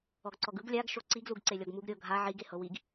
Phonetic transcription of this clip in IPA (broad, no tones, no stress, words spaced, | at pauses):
ɔɡǀɔɡɯɡ lʲaɡ ʃoǀiɡ luɡǀelʲɔɡmuɡ ɾʲɤ ɡʱa ʕiɡ ehɤwiɡ